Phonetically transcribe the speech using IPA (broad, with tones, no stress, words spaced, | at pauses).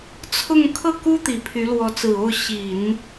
t͡sʰʊ˥˧ŋ kʰɤ˥˩ku˥t̪i˨˩ pʰy˧˥ lwɔ˧˥t͡sɹ̩˨˩o˥˩ʊ̯ ɕi˨˩˦n